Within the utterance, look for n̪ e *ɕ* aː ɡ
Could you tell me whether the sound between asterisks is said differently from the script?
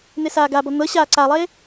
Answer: yes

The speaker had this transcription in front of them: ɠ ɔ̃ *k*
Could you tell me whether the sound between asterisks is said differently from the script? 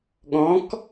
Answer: no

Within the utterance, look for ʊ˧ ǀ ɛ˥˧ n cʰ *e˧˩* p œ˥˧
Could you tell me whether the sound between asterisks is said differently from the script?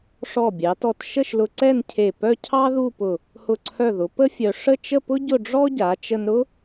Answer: no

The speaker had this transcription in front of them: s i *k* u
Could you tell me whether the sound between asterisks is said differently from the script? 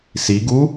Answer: yes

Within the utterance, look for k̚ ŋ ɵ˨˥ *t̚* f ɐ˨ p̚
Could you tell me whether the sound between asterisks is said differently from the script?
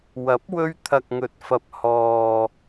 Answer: no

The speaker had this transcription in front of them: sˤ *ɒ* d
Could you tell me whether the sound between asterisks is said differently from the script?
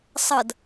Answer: yes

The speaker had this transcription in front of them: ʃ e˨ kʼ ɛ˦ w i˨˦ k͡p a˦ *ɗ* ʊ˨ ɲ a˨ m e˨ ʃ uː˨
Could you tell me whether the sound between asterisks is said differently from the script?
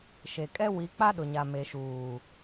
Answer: no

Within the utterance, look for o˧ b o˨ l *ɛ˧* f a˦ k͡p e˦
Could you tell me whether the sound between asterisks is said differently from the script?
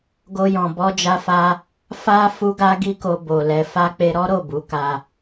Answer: no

